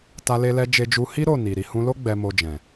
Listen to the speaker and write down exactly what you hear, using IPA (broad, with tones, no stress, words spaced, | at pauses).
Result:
ta˧le˧lɛ˧ d͡ʒe˧d͡ʒu˧hi˦ ɾo˦˨ni˨ ɾi˨hũ˧lo˦ ɡ͡bɛ˧mo˧d͡ʒɛ̃˨